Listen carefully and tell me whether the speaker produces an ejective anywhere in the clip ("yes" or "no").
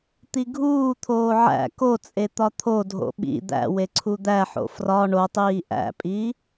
yes